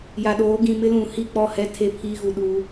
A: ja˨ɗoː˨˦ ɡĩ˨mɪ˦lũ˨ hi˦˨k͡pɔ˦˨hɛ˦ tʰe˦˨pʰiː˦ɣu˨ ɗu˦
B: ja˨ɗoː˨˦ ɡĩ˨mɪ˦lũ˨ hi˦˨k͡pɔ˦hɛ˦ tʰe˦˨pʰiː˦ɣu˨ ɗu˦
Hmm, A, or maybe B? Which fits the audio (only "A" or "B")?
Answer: A